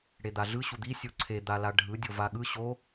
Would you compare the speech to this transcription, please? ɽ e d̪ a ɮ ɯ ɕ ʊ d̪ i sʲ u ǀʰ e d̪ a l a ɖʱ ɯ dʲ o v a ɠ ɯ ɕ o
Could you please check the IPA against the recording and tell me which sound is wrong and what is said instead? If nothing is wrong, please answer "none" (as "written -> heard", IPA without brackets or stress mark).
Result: ʊ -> u